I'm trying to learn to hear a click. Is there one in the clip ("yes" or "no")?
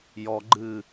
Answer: yes